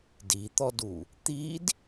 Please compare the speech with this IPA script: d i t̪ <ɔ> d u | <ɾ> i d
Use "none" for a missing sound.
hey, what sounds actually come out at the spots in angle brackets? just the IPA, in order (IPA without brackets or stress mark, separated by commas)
ɔ, t̪